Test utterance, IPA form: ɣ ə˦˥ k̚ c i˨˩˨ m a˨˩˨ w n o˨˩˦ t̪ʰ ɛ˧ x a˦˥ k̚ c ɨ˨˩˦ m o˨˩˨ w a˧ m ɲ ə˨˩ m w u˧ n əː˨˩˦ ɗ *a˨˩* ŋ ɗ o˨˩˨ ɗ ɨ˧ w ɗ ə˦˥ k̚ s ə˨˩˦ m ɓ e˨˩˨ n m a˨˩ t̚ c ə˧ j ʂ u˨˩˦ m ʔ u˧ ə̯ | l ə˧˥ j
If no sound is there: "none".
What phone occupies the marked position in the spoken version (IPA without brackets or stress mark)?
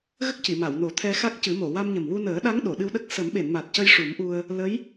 a˧˥